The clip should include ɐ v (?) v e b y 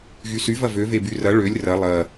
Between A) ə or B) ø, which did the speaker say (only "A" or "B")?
B